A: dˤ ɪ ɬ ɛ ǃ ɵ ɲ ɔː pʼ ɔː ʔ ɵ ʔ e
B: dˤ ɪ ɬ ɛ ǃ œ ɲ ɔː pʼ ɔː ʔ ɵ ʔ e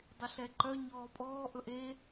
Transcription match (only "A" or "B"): B